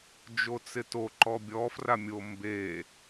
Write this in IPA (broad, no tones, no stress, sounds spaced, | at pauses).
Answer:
d͡ʒ o t͡s ɪ t o ǃ ɔ bʲ ɔ f r a mʲ o m b e